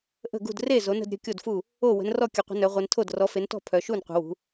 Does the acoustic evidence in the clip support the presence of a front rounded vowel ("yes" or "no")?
yes